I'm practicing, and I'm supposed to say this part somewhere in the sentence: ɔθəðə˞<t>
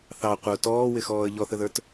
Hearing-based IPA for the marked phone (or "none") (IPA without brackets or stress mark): t